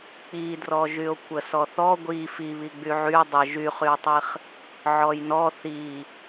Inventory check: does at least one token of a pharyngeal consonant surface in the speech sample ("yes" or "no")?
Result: yes